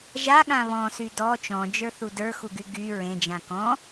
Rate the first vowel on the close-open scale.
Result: open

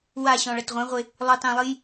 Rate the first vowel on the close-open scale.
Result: open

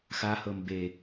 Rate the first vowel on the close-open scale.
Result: open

